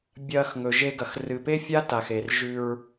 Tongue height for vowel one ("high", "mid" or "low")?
low